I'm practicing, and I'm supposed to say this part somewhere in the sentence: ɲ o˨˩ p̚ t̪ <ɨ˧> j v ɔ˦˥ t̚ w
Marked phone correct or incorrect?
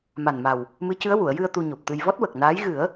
correct